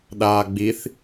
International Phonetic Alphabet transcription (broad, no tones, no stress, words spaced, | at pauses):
ɗaːɡ͡biθ